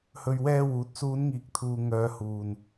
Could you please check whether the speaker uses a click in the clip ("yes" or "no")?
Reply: no